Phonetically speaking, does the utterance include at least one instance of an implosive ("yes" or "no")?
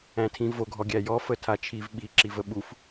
yes